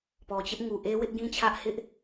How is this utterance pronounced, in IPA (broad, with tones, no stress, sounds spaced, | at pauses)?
p ɔ˨ t͡ɕ ɪ˦ ʔ ŋ u˨ ʔ e˦ w ɪ˦ ʔ ɡ ĩ˦ t͡ɕʰ ä˦ ʔ h ɪ˦ ʔ